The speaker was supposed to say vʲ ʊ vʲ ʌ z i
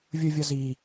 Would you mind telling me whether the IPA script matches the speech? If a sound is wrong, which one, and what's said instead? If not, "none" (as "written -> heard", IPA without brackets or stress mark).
none